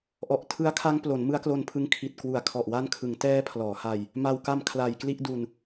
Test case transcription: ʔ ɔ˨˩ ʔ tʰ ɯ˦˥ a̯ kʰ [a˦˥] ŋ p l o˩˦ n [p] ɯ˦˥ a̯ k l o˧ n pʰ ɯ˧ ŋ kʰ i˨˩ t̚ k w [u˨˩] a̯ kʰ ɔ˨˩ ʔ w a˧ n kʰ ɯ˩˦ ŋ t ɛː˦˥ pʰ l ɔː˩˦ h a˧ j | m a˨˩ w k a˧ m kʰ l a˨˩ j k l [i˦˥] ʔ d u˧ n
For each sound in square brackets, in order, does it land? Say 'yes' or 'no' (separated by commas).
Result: yes, no, yes, no